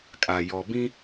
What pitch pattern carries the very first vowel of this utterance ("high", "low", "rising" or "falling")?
low